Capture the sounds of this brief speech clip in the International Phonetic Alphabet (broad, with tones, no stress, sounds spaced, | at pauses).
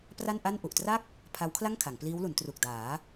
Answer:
p r a˥˩ n ʔ a˥˩ n ʔ u˨˩ ʔ t r a˥˩ k̚ | pʰ a˦˥ w kʰ l a˥˩ ŋ kʰ a˩˦ ŋ p l iː˦˥ w l u˩˦ n t r u˨˩ k̚ d aː˩˦